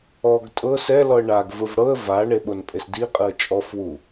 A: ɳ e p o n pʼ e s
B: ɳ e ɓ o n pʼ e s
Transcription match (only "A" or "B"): B